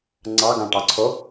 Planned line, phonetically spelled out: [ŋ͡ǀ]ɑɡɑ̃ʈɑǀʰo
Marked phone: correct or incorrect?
correct